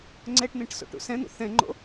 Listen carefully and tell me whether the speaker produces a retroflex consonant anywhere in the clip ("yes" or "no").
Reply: yes